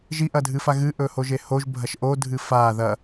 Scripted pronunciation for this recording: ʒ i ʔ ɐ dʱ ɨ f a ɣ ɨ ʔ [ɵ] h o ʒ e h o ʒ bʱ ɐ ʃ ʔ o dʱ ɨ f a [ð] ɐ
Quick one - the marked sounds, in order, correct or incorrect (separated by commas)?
correct, correct